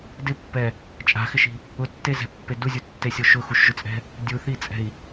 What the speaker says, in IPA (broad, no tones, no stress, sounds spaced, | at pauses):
d ɪ pː ɛ | t͡ʃʼ a̤ x ɪ ʃ i̤ | ʊ tː e z ɛ̤ pː e d u zʲ u tː e sʲ o ʃ ʊ x u ʃ ʒ ʊ t͡sʼ ɛ̤ | dʲ u θ i t͡sʼ ɛ̤ i̯